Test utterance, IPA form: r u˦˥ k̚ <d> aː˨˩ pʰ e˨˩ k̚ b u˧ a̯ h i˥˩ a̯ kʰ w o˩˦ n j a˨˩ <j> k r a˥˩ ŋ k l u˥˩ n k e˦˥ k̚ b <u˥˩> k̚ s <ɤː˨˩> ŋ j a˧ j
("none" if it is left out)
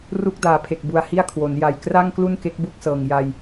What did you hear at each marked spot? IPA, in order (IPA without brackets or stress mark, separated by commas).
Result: d, j, u˥˩, ɤː˨˩